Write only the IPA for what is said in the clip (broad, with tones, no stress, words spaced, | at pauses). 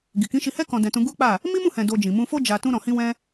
ɡi˨kĩ˨˦ʃi˧hɛ˦ kɔ̃˧dɛ̃˧tũ˧ ɡu˦k͡pa˦˨ | mi˦mũ˦˨hɛ̃˨ do˧d͡ʒĩ˨ mũ˧fo˦ d͡ʒa˧ tũ˧ɾɔ̃˨hĩ˧wɛ̃˧